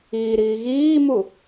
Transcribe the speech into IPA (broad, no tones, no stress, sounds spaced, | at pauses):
iː ɾ iː ɣ iː m u